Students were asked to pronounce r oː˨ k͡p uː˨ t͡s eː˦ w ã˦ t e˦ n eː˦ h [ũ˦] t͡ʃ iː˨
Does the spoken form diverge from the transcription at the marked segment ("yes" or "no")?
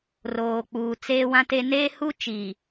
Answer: yes